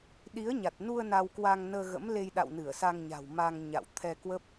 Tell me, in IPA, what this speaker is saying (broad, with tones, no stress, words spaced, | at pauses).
ɗi˨˦ə̯ɲa˨˩t̚nu˧ə̯ na˧wkwa˧ŋnəː˧ɣə̰˧˥m le˧jɗa̰˧˨w nɨ˧˩ə̯sa˧ŋɲa̤˨˩w ma˧ŋɲa̰˧˨w t̪ʰɛ˧kwə˦˥p̚